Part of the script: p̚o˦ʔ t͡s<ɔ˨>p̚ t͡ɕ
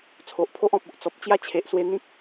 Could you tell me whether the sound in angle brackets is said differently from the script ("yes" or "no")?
no